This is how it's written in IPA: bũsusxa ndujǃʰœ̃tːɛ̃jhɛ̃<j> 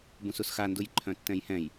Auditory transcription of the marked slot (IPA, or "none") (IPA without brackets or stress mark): j